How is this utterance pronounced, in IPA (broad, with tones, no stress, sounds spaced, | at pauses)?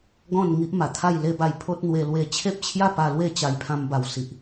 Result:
ɡ ɔ̃˥˧ n ŋ i˦ ʔ m a˨˩ t̪ʰ a˥˧ j l e˦ b a˧ j pʰ o˦ t̚ n̪ w e˧ l w e˧ t͡ɕʰ e˦ p̚ t͡ɕʰ j a˥˧ p a˧ l w e˥˧ t͡ɕ a˧ j pʰ ã˧ m b a˨˩ w s i˨ ʔ